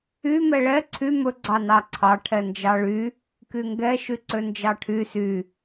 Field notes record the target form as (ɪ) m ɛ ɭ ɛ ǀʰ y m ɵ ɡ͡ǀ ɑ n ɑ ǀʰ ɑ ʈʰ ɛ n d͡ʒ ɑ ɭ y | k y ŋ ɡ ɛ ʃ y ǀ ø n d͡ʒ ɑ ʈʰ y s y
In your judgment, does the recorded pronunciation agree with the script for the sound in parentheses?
no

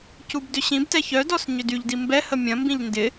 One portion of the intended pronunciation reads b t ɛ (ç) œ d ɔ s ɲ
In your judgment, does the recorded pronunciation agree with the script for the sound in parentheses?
yes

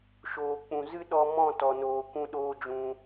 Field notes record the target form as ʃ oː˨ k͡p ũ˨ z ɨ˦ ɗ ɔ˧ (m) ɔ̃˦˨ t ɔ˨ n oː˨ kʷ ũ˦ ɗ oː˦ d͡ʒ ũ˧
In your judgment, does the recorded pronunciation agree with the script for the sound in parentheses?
yes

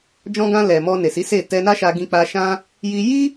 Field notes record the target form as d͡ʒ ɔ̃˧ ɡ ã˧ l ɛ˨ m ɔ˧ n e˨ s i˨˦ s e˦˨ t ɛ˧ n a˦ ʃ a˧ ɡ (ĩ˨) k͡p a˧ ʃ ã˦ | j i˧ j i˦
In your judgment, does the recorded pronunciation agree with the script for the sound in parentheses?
no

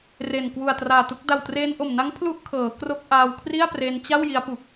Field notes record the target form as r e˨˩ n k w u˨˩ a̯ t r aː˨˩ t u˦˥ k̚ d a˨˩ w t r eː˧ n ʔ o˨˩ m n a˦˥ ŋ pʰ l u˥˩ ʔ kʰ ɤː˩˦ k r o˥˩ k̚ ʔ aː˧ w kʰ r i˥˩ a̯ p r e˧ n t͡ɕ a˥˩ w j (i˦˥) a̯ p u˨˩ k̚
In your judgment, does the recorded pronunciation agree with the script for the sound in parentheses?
yes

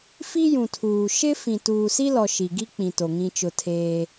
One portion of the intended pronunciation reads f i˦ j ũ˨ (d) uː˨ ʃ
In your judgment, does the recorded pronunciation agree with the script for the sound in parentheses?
no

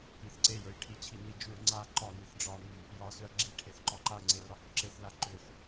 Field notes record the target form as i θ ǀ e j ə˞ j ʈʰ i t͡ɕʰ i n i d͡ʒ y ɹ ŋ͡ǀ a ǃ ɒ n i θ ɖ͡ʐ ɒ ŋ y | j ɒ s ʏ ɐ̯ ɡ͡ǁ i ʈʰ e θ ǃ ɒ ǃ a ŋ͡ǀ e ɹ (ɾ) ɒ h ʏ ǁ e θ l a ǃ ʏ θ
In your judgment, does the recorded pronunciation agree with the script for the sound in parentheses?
yes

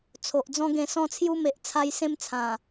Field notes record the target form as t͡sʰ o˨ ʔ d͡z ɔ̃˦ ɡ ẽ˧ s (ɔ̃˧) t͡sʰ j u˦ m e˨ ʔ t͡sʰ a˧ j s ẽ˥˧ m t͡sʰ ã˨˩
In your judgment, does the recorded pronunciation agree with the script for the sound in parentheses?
no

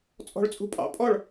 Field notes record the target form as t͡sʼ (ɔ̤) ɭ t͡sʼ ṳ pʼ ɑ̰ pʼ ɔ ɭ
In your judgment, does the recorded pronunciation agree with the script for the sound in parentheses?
yes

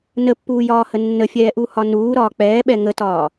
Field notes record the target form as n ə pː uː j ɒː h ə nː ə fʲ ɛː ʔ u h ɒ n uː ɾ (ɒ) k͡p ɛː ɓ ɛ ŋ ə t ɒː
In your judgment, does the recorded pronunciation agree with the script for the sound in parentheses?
no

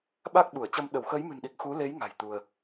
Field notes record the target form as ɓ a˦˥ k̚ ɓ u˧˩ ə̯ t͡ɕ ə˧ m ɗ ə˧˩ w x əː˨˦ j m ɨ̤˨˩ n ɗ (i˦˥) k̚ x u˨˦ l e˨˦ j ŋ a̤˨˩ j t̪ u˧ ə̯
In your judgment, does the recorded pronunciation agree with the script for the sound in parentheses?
no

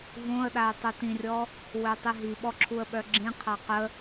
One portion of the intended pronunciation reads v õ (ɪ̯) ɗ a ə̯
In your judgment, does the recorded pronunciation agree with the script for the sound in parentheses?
no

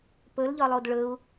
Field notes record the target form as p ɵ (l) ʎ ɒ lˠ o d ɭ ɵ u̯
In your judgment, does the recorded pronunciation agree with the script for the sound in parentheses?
yes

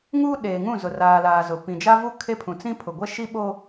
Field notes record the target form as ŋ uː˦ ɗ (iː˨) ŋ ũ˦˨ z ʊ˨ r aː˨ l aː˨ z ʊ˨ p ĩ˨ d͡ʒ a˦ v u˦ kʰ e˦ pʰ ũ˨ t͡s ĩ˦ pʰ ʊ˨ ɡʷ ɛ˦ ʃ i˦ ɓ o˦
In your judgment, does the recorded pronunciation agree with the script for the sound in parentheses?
no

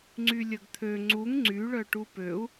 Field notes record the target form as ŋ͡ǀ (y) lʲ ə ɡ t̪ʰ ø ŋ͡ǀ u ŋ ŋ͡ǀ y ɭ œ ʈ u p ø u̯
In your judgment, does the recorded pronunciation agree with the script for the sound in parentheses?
yes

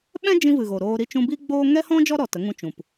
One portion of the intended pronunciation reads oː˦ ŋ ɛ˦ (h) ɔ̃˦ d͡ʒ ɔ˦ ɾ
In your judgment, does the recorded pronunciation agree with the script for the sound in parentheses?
yes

